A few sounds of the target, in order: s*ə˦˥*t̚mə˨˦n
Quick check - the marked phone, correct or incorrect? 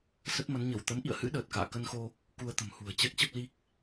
correct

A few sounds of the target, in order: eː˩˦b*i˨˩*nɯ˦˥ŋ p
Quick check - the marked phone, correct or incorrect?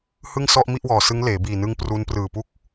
incorrect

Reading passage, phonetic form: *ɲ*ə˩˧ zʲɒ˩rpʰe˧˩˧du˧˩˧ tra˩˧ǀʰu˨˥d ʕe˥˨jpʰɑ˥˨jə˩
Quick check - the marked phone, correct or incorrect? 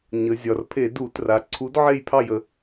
correct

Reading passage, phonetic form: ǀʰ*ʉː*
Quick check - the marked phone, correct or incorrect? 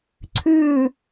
correct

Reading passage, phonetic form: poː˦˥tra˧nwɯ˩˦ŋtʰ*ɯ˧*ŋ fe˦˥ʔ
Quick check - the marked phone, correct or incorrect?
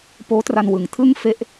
incorrect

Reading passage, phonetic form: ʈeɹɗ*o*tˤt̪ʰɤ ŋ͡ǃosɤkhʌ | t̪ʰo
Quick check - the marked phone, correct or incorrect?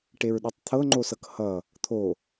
correct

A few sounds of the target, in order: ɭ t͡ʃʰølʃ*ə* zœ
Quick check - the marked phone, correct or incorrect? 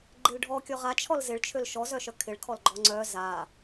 incorrect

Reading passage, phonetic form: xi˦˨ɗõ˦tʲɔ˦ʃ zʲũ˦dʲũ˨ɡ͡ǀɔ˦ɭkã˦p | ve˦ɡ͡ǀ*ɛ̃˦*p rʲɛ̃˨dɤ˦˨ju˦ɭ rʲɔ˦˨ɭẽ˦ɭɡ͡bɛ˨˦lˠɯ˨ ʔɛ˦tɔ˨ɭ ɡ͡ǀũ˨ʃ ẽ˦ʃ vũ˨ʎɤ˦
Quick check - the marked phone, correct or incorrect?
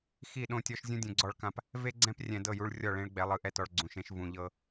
correct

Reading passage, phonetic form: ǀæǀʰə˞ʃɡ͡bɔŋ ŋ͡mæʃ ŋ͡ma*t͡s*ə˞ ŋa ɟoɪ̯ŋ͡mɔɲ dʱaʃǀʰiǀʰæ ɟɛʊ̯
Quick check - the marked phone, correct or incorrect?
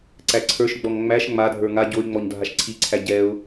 incorrect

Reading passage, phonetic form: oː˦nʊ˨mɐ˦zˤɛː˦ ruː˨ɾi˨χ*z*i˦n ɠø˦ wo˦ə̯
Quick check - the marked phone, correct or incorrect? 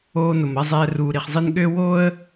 incorrect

